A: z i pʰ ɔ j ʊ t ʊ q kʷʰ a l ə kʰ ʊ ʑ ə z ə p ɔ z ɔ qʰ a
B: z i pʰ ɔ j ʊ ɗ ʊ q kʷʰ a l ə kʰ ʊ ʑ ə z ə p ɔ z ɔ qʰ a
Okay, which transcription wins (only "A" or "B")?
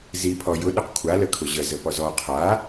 B